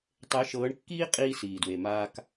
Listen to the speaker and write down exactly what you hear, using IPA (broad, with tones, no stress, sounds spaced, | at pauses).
tˤ e˨˦ ʃ ɤː˨˦ ɳ kː iː˦ qʼ iː˦ s iː˨ d w e˨ m aː˦ k